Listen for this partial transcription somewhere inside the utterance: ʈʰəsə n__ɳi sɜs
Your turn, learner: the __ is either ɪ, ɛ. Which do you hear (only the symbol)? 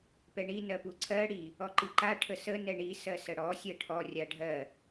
ɛ